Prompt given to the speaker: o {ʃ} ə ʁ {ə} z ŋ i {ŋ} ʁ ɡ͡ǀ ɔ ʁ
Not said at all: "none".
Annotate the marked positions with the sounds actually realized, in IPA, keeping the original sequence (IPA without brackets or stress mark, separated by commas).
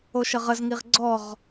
ʃ, ə, none